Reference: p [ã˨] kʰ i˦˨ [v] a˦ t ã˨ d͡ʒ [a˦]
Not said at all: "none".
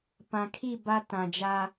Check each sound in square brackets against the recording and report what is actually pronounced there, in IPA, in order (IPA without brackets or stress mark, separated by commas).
ã˨, b, a˦